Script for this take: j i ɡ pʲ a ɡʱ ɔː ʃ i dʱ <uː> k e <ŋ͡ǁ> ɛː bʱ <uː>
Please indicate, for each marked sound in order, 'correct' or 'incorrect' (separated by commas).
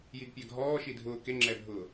incorrect, correct, incorrect